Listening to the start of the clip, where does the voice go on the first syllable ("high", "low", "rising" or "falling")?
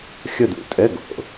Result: falling